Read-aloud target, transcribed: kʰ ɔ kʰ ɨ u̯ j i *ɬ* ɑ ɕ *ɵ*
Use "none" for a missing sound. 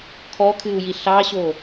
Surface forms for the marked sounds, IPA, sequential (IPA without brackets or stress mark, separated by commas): ɬ, o